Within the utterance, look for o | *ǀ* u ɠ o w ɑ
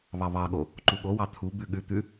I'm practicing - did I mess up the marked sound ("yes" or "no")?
yes